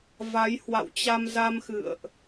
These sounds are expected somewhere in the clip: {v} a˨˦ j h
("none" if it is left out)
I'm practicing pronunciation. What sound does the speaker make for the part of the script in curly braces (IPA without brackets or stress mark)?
v